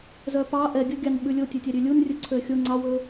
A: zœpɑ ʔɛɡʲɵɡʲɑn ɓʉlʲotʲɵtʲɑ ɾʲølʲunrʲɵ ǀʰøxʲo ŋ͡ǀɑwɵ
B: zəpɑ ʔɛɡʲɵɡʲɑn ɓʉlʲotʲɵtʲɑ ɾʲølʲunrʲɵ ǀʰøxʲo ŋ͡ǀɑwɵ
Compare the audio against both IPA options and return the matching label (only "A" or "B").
A